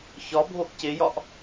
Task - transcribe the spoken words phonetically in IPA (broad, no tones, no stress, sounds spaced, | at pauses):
ç ɒ bʱ o ʔ c e j ɒ ʔ